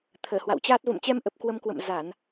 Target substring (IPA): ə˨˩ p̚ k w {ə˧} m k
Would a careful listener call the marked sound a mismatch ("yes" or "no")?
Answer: no